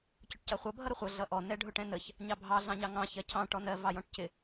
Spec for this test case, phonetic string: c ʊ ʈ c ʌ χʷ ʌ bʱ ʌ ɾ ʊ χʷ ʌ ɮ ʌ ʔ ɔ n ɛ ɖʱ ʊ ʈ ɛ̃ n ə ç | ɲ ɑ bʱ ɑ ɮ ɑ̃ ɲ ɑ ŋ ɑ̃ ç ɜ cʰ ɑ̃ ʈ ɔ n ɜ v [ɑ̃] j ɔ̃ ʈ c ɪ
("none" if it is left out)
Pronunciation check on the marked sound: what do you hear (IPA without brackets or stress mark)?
ɑ